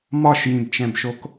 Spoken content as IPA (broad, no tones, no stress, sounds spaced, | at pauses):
m ɒ ʃ j ĩ b t͡ʃ ɛ̃ b ʃ o k